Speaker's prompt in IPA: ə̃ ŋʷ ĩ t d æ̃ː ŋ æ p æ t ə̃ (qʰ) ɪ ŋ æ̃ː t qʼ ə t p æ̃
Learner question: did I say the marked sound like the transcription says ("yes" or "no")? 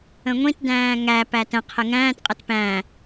yes